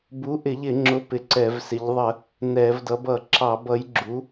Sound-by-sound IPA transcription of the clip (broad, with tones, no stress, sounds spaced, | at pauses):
b u˨˥ ʔ ɪ˧˩˧ ʎ ɪ˧˩˧ ŋ͡ǁ ʊ˨˥ p ɪ˧˩˧ ǀ ɛ˧˩˧ v s ɪ˨˥ ʎ ðˤ ə˧˩˧ | n ɛ˧˩˧ v d ʌ˨˥ b ʌ˧˩˧ ǁ ɑ˧˩˧ b ʌ˨˥ j ɡ͡ǁ u˨˥